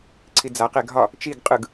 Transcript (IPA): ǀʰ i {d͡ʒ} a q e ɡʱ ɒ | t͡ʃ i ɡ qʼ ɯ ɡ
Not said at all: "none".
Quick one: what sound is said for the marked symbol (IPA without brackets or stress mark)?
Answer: d͡z